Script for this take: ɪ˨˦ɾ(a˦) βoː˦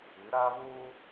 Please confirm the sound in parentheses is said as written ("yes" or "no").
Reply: yes